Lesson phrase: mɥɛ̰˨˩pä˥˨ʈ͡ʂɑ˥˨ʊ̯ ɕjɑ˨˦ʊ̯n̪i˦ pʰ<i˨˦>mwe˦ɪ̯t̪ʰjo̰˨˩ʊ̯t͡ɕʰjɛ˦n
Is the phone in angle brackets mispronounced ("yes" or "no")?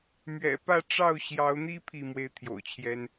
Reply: yes